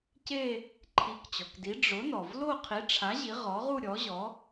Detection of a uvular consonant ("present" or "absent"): present